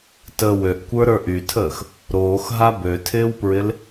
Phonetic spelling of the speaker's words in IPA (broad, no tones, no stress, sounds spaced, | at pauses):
t ə w ø ʔ kʷ ə˞ ɾ ə˞ ʔ y tʰ əː x | ɾ oː x ɦ a b ø tʰ ɪː w p ɹ ɪ l